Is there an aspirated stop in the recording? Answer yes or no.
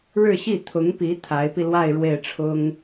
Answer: yes